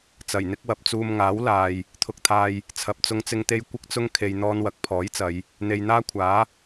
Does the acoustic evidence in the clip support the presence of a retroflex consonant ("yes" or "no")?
no